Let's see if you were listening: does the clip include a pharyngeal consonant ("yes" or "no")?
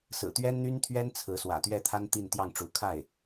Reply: no